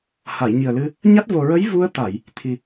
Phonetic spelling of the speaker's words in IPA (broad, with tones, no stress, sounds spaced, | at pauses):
h a˨˩˨ j ɲ i˨˩ ə̯ l ɨ˧ | ɲ a˦˥ t̚ v o˨˩ ɹ ə˧˥ j v u˧ ə̯ t̪ a˨˩˨ j | t̪ʰ i˨˩